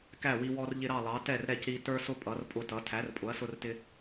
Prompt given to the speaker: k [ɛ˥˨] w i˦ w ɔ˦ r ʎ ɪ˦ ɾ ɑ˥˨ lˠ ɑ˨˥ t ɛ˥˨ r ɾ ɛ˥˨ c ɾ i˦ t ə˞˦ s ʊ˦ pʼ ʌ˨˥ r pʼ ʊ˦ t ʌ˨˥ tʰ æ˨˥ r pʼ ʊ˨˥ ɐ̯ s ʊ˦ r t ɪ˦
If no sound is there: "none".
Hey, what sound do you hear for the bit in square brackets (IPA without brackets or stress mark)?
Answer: æ˥˨